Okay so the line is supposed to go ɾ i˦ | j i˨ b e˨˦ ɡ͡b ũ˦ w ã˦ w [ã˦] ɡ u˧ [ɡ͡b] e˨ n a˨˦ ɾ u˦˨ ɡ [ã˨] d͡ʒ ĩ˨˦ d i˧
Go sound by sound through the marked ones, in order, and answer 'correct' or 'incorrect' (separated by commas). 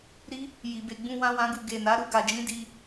correct, incorrect, incorrect